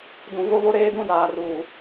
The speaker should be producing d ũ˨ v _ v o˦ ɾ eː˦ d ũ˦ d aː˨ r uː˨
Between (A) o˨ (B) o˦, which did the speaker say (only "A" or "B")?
B